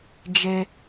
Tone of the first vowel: high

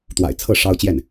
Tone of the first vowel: low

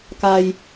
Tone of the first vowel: low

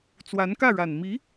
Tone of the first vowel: rising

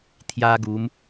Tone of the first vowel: high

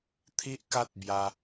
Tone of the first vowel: high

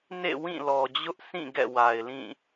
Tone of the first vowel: falling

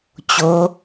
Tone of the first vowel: rising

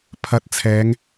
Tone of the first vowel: rising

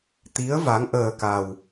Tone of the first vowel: rising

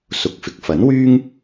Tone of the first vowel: rising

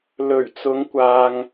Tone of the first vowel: low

